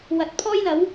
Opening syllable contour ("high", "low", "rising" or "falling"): rising